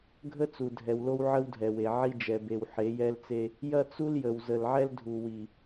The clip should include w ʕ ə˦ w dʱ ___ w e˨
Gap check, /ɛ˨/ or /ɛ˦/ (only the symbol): ɛ˨